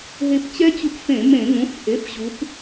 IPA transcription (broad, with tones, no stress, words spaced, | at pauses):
ɦe˧pt͡ɕɛ˦˥t͡ɕu˧pfẽ˧˩˧ mẽ˧˩˧ ŋũ˩˧˩fʔe˩˧˩f ʑu˩˧p